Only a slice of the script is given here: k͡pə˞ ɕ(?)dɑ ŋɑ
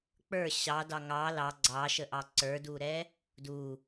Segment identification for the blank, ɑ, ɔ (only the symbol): ɑ